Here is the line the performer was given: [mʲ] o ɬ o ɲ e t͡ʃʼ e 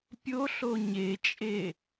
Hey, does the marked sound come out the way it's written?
no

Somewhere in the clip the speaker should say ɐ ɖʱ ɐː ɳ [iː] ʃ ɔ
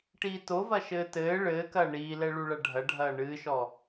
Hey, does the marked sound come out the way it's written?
no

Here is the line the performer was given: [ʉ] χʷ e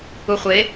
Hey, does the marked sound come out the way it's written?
no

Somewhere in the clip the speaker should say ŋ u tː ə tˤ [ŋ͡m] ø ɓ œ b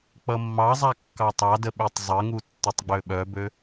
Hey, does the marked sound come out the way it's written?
no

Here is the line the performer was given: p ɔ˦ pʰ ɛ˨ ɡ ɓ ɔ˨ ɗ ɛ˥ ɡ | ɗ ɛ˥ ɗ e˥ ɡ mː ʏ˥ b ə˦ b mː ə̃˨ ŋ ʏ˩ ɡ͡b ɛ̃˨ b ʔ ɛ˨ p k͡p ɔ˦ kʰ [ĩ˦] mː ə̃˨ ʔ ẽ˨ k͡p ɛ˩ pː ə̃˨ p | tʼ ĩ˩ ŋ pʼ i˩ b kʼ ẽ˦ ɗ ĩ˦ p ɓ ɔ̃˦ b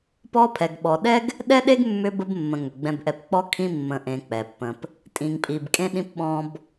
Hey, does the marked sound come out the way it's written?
yes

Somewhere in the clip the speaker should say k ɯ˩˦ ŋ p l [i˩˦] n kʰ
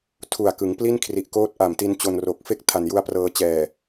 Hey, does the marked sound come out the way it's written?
no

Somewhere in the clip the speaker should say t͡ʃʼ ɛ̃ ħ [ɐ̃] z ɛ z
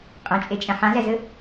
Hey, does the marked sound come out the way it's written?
no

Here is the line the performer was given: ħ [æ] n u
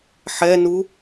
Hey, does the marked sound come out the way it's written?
no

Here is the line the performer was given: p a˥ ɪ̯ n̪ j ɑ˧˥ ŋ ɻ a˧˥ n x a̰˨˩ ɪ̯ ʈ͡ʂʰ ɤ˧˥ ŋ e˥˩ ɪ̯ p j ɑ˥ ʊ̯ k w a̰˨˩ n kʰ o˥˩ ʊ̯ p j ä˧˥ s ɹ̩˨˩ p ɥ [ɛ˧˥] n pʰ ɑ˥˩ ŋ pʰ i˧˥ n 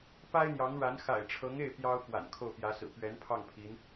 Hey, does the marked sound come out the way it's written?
yes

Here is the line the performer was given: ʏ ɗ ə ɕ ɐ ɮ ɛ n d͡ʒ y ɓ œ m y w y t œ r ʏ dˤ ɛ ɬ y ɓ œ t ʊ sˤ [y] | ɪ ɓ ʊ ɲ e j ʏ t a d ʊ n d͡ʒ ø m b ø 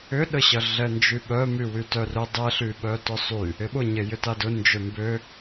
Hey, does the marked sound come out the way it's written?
yes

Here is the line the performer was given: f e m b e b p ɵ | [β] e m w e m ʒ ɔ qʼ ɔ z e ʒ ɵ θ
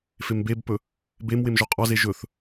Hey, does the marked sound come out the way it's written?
no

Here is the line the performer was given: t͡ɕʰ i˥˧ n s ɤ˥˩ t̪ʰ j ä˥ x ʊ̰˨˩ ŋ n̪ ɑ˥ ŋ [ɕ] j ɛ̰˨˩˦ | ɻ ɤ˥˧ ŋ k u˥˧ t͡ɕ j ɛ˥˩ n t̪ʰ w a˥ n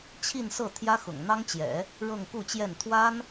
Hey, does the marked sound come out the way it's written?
no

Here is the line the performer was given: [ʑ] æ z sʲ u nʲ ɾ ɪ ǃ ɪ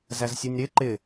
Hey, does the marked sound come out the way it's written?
no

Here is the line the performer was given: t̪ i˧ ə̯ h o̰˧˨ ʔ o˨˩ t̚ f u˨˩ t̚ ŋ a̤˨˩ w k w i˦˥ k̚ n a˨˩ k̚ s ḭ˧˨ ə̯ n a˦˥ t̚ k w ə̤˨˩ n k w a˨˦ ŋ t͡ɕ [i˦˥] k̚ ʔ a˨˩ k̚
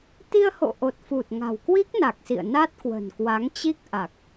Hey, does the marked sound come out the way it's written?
yes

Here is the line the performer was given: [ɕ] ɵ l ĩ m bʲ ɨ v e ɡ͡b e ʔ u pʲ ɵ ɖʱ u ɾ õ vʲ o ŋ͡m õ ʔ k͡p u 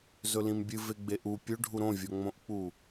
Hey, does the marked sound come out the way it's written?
no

